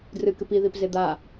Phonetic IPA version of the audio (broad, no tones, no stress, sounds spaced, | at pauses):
d r ɨ k ɨ p i ð i p z e d̪ a